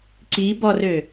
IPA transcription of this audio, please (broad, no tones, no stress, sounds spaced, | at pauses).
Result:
ǀ i b ɔ r ø